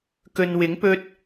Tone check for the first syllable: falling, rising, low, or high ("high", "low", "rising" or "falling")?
low